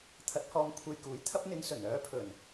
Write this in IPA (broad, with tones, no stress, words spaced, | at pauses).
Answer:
t̪ʰɐ˨˥t̚hɔː˨mkʷʰe˨j kuː˨˥jt̪ʰɐ˥p̚ n̪ɪ˧ŋsɵ˨˩n œː˨˥pʰɵ˨˩n